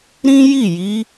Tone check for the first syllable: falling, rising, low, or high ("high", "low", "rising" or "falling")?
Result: high